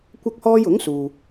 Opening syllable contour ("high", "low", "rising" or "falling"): high